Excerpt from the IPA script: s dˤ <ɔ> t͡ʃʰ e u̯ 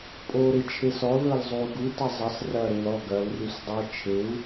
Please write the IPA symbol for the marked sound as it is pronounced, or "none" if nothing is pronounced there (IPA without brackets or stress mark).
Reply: ɤ